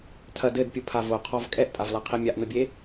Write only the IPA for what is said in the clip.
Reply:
tʰɐd ɘdpʲupʰa voqʰɔv kʼɛʔtʼavlaqʰi mʲaʔn̪ɘbʲe

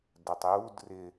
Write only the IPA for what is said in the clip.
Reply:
dətˤ jud rɪ

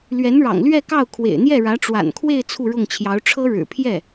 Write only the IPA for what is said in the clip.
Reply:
lɥɛ˧˥nɻɑ̰˨˩ŋlɥɛ˥˧kɑ˥˩ʊ̯ kʰwḛ˨˩ɪ̯n̪jɛ˥˩ɻä˧˥ ʈ͡ʂwa̰˨˩nkʰwe˥˧ɪ̯ t͡sʰu˥˧ɻʊ˥˩ŋt͡ɕʰjɑ˧˥ʊ̯ ʈ͡ʂʰɤ˥ɻɻ̩˨˩ pʰjɛ˥˩

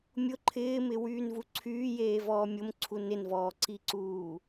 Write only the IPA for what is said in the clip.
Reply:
mʲʊ ǃʰɪːmɪwyːnvu ǀʰyːjeːvɔː mʲʊmǀʰu nɪnvɔːǀiǀuː

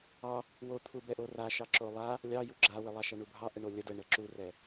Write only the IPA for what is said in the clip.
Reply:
ɑ | wot̪ʰu bɛʔoraʃɑ ǁolˠa | lʲɑju ɡ͡ǁawə lˠɑʃaɳubʱɑ ʔəɳolʲə dəɳə ǁurɛ

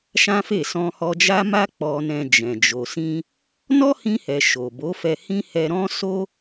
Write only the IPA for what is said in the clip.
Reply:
ʃã˦fe˦˨ sɔ̃˧hɔ˧d͡ʒa˦ma˦ k͡pɔ˧nɛ̃˧ d͡ʒɛ̃˨d͡ʒo˨sĩ˧ | nɔ˦hĩ˧hɛ˨ ʃo˨bo˨˦fɛ˧ hĩ˦hɛ˧ ɾɔ̃˧ so˦

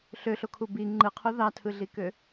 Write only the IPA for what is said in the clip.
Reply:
ɬøɬokʰu bi ŋ͡ǃɯqʰu ðɑtʰɯɮikø

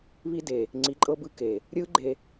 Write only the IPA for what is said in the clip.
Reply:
βi˧de˨ | ŋ͡ǀi˨˦ǃʼɤ˧bɯ˧ ke˨ | ɾʲɯ˦ɡ͡ǃe˧

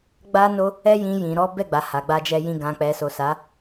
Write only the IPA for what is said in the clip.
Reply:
ɡ͡ba˦no˦ | ɛ˦jĩ˧ jĩ˨ɾɔ˨˦ bɛ˦˨ɡ͡ba˨ ha˨ɡ͡ba˧d͡ʒɛ˧ jĩ˨ɡã˨k͡pɛ˨so˨ sa˨˦

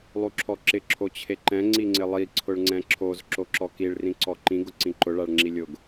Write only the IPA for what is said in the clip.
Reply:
lˠuǁʰɔǁɪ ǁʰot͡ɕʰeǃɛ̃ ŋ͡ǀiŋ͡ǀɪlˠi ǀʰʊɭŋ͡ǀɛ̃ǁʰoz ǁoǁɔkiɭ rĩǀɔǃĩ ɡʊǀĩǃʊ ɭaɭŋ͡ǁilʲʊɡ

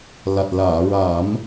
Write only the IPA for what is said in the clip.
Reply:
la˨˩t̚ laː˨˩˨ ɹa˨˩˦m

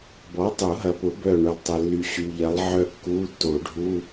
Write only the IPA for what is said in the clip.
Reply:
bɔ˨˥tˤu˨˩˦ɦɐ˨pʊ˨˩˦ bœ˥˨ɳø˨lˠtˤə˨ lːy˨ɕy˨ʎɐ˨˥lˠʕœ˥˨ kːu˧˥˧tːo˨˩˦ɖʱu˧˥˧

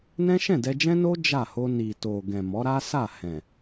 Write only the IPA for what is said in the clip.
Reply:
nɛ̃˦ʃɛ̃˦˨dɛ˧d͡ʒɛ̃˦ no˦ d͡ʒa˦˨ ho˧ ni˨ to˨ɡɛ̃˨ mɔ˨˦ɾa˦sa˦˨ hɛ̃˨

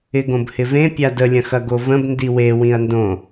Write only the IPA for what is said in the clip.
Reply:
ɪɡõbhɪvẽ pʲadə lʲɐ̃xɐɡovə̃b ndiwe wĩɐ̯ndõ

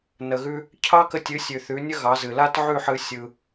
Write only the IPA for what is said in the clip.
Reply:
nə˩ɣʉ˧ | cʰɑ˥kə˧tʲɨ˩˥sʲʉ˩ θʉ˩˥nʲə˥ ɣɑ˩˥zɨ˩ la˥tʕʉ˥˩ħɨ˧ sʲɯ˧

